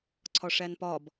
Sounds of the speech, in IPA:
ǀʰɒʂænpɒb

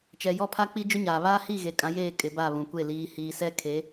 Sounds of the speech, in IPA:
t͡ʃɛ˨jɔ˦ pʰa˦k͡pi˦d͡ʒʊ˦ɲaː˨ βaː˦hi˦˨ɣe˨ kʼã˨˦jeː˦˨ kʼɪ˨˦ba˦˨βũ˨kʷe˦˨ liː˨hiː˨sɛ˦ kʰe˨˦

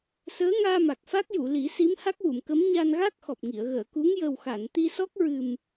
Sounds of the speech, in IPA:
səː˧˥ŋaː˧ma˨˩k̚ fa˦˥k̚ju˨˩˨li˨˩˦ si˧˥mha˦˥k̚wu˨˩˨mkə˧˥m ɲa˧nɣa˦˥k̚xɔ˨˩p̚ŋi˨˩˨ə̯ ɣəː˨˩˨ku˧˥ŋ jə˨˩wxa˨˩˨n t̪i˧sɔ˦˥k̚ ɹɨ˨˩m

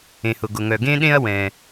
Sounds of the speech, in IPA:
ẽ˩hʊ˩ɡʊ˩ŋœ˩ ɡẽ˥ɗẽ˥ɐ̯ wɛ̃˩

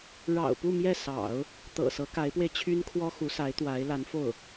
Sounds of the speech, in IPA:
ɻɑ̰˨˩ʊ̯pu˥˧ mjɛ˥˩sɑ̰˨˩˦ʊ̯ | t̪ɤ̰˨˩sɤ˧˥ka˧˥ɪ̯pwe˧ɪ̯ t͡ɕʰy˥nkʰwɔ˥xu˧˥sa˧˥ɪ̯ t̪wa˧˥ɪ̯ la˧˥nfo˥˩ʊ̯

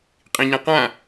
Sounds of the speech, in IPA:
qʼĩɲãqã

